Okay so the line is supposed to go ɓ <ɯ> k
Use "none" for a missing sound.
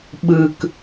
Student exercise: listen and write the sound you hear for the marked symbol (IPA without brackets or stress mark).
ɯ